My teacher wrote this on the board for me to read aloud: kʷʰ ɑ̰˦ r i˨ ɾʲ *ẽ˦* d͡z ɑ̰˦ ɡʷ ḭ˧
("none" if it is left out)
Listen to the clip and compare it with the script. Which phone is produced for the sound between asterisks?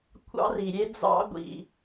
e˦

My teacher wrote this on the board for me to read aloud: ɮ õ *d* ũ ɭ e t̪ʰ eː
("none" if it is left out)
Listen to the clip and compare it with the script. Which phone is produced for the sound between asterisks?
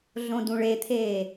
d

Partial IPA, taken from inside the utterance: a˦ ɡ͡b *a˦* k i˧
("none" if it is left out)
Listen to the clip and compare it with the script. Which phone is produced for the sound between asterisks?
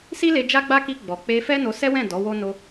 a˦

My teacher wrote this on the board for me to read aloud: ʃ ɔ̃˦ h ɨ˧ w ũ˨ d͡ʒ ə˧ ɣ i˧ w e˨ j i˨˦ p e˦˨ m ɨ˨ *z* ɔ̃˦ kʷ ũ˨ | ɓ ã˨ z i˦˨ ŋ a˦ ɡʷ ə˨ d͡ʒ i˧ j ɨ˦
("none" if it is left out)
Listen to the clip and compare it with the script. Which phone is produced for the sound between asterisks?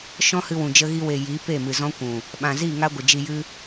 z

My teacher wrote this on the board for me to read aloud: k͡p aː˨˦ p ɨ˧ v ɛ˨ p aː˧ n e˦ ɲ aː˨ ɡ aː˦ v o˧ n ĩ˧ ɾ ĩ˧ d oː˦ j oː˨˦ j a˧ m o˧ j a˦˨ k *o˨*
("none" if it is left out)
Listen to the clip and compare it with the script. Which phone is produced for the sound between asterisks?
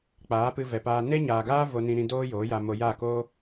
o˦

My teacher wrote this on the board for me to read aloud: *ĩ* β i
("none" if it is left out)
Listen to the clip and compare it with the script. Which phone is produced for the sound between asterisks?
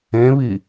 ẽ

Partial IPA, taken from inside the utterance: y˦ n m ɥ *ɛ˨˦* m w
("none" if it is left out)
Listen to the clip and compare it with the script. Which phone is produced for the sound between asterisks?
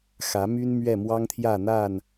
ɛ˥˨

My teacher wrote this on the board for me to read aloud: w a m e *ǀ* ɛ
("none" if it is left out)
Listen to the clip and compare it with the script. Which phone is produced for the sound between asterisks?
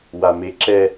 ǁ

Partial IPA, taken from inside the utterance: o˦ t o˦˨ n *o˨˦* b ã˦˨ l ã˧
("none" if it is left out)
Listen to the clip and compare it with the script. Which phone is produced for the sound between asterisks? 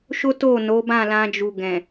o˨˦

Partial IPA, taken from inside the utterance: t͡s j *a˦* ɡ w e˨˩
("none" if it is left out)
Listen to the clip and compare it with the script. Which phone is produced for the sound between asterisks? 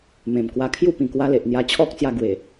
a˧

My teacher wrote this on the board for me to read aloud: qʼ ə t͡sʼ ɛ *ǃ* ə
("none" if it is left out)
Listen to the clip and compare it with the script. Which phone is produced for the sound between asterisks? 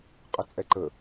ǃ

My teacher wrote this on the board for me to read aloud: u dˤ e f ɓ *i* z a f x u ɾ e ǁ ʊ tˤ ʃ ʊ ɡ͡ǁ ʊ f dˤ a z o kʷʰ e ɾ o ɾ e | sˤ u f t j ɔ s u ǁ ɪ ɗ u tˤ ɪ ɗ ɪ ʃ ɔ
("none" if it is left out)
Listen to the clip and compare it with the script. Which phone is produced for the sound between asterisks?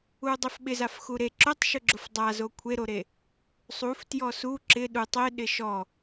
ɪ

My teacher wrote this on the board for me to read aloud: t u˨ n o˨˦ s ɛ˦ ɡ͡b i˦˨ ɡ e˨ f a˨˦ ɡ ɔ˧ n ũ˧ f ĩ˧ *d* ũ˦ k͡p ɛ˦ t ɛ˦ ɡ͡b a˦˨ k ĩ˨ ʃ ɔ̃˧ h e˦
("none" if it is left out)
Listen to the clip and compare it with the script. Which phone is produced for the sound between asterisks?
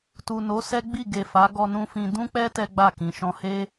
d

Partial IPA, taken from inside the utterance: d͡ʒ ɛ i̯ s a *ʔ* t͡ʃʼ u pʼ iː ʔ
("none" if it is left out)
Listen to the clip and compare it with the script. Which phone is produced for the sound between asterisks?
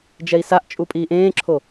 ʔ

